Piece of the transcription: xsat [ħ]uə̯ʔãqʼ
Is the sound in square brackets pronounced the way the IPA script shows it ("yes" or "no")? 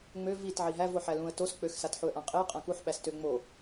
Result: yes